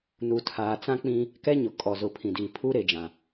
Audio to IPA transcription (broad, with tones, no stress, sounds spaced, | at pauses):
n u˨ tʰ aː˨ t͡s ã˦ k͡p ĩ˦ | k ɛ˦ ɲ ʊ˨ kʼ ɔ˨ z ʊ˨ pʰ ĩ˨ d i˨ pʰ u˦ ɾ e˨ d͡ʒ ã˨